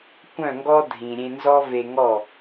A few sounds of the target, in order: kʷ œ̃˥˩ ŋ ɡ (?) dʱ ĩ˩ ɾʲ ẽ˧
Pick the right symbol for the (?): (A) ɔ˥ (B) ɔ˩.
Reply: A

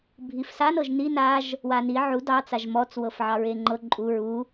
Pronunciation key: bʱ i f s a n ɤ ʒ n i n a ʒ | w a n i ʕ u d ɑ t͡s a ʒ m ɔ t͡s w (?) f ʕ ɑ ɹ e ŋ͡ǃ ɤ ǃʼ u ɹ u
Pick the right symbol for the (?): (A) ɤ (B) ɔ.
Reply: A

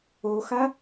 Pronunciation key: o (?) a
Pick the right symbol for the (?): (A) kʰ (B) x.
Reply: B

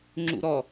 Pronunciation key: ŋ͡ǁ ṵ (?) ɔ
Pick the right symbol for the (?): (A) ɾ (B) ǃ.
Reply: A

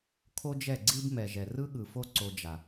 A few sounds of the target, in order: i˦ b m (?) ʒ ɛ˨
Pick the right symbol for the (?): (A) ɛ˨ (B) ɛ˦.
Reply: A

